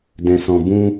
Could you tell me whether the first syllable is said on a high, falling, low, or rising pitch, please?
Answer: low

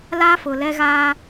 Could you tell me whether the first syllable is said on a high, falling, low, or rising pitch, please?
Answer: high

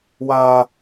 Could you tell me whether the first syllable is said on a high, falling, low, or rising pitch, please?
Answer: high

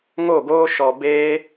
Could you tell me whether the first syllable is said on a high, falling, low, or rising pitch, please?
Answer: falling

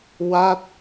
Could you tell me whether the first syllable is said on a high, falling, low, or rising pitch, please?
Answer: falling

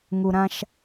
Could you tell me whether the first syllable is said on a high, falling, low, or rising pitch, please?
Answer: low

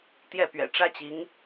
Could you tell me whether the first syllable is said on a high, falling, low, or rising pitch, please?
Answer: falling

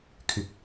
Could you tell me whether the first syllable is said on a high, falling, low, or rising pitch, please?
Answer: low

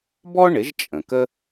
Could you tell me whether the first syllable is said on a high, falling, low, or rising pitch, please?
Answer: high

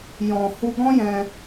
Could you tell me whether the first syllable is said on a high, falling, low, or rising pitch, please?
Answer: low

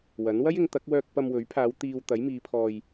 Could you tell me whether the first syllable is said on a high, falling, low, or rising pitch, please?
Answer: rising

